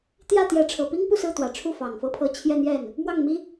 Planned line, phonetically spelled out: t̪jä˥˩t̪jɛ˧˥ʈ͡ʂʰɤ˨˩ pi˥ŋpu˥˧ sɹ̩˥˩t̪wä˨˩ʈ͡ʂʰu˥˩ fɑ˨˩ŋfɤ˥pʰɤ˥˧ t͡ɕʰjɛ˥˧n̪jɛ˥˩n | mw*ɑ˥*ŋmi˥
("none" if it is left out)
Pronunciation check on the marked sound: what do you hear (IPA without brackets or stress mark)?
ɑ˥˩